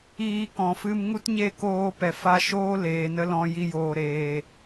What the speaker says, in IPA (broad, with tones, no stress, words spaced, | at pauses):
iː˧kɔ̃˨fɨ˧m ŋu˦tɲe˦˨koː˧pɛ˨ fa˦ ʃoː˦leː˨nə˧ lɔ̃˧ji˧joː˨ ɾeː˨